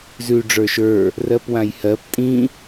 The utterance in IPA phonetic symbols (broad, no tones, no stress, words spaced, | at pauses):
zʉ ɖ͡ʐə˞ʃə˞ | rɜpwãjhɜp tʼĩ